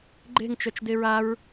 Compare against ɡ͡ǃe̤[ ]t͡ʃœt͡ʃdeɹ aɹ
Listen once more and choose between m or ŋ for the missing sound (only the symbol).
ŋ